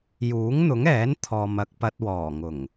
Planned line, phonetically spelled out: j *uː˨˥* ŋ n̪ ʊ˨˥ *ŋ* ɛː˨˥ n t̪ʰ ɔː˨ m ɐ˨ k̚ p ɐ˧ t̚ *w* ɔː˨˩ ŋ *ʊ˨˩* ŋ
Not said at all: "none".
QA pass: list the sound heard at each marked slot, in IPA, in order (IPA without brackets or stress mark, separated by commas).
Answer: uː˨˥, ŋ, w, ʊ˨˩